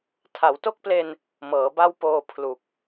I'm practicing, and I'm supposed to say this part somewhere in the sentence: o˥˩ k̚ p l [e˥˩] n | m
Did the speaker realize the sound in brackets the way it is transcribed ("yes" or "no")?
no